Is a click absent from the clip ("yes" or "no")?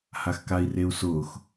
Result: yes